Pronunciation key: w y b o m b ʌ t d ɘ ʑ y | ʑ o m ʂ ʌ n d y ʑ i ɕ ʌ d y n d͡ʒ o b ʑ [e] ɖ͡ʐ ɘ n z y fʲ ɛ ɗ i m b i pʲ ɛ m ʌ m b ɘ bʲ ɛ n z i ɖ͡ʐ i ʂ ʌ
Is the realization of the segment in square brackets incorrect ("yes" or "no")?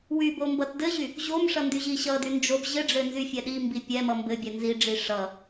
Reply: yes